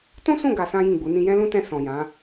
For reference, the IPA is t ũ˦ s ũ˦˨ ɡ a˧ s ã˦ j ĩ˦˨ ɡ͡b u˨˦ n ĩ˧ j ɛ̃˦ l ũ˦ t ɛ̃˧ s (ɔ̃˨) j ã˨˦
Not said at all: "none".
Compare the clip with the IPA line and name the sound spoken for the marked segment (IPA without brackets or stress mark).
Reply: ɔ̃˨